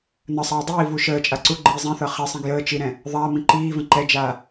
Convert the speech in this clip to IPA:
n ə sˤ aː dˤ iː v u ʃ əː t͡ʃʼ a ǀ u ɡ͡ǃ iː zˤ ĩ θ ɤ χ ɛ sˤ ĩ ɡ j əː t͡ʃ i ɾ ɛ̃ | ðˤ aː m ĩ ǃ iː v ə̃ ǃ ɛ d͡ʒ aː

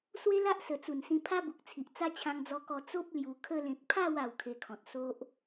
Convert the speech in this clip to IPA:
s w e˦ l a˦ ʔ s ə˨˩ t͡s u˨˩ n s ĩ˧ pʰ a˦ b u˨ k̚ t͡sʰ i˨ ʔ t͡s a˦ t͡ɕʰ ã˧ ŋ d͡z ɔ˧ k ɔ˧ t͡s o˦ p̚ l j u˧ kʰ ə˧ l ẽ˨ k̚ pʰ a˥˧ w a˥˧ w kʰ e˧ kʰ ɔ̃˨ t̚ s o˦ ʔ

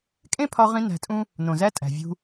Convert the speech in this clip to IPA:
kʼ ẽ˦ pʰ ɒ˧ ʁ ĩ˧ n æ̤˧ tʼ ũ˦ | n õ˨ z æ˦ tʼ æ̤˨ vʲ ṳ˧

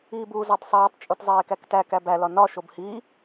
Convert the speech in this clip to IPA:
iː b uː z ɒ tˤ sˤ iː tˤ t͡ʃʼ u t zˤ eː k æ k t æ k æ b æ l ɒ n ɒ ʃ o b h i

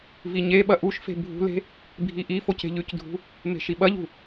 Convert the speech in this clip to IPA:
v i ɲ e ɓ ɐ ʔ u ʃ f e̤ bʱ ṳ l e̤ | bʱ i ʔ i f o c e̤ ʎ ʉ c dʱ ṳ | m e̤ ʃ i ɓ ɐ ʎ ṳ

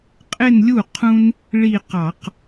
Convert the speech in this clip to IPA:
qʼ ɪ˥˧ n lʲ u˥˩ qʰ ũ˥ n | ɭ i˥˧ q ɑ˧˩˧ q

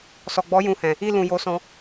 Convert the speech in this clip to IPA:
s ɔ˨ ɡ͡b ɔ˨˦ j ũ˧ h ɛ̃˨ | i˧ l ũ˨ j o˨˦ s ɔ̃˧

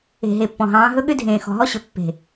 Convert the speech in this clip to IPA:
e̤˨ ɦ e˨ pː ɔ̃˨ ɦ ɑ̃ː˨˦ ɦ ɵ˦ ɠ ʏ˦ dʱ ẽː˨ x ɔ̤˨ ɦ ɔ˦ ɕ ɵ˨ pː e̤˨

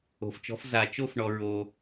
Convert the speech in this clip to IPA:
o̤˨ f t͡ʃ ɔ̤˧˥ f z a˨ t͡ʃ o˥˧ f ɳ ɔ˨ ɹ o˨

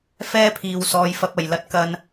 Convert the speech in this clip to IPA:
f ɛː˥ pʰ iː˨ w s ɔː˨˧ j f ɐ˧ p̚ ɐ˨˩ j l ɐ˨˥ t̚ k ɐ˨ n

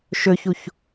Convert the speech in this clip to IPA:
ʃ ɵ ç u ç

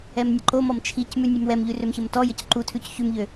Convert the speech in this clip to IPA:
ɛ m nʲ ə ǃ o m ɔ m t͡ʃʰ i c m ʉ nʲ ʉ m w ɛ m ʎ ʉ r ø m ç ə m t ɔ j ə c ǃ u tʰ ʉ c ç ʉ m ʎ ø

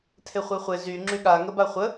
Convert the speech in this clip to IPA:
tʰ e χʷ e χʷ e z y ŋ͡ǁ y ɠ a ŋ ə b a χʷ ə

